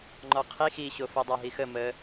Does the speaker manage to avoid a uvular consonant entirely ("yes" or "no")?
no